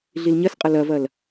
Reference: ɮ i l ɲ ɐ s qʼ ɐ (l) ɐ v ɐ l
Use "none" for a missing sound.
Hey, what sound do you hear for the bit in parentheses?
l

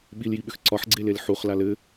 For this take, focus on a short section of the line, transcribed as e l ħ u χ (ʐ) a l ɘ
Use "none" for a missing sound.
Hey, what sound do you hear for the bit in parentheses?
l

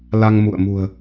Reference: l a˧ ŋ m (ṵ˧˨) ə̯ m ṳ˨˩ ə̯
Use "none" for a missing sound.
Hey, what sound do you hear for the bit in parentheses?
ṵ˧˨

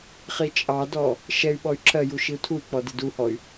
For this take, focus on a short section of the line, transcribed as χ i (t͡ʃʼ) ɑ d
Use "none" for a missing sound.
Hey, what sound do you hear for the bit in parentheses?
t͡ʃʼ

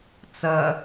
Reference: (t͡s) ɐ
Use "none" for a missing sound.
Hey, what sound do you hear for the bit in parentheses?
t͡s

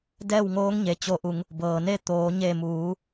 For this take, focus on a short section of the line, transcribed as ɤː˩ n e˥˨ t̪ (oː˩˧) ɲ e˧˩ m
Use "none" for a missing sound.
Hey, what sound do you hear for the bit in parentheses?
oː˩˧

